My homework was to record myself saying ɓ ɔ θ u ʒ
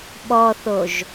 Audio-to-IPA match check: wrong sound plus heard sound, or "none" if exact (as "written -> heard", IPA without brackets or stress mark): u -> o